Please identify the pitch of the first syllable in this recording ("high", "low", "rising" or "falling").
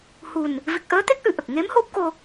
low